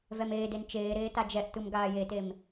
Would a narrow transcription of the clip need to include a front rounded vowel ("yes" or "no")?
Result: no